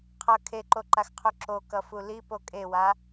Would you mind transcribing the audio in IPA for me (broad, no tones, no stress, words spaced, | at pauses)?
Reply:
qʰʌ kʰeǃoǃaxqʰu ǁokʌfu lipo kʼewa